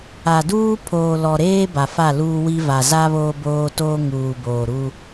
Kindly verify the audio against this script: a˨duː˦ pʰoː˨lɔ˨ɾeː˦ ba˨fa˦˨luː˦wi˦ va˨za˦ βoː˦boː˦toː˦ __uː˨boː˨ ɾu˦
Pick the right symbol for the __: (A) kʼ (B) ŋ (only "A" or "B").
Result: B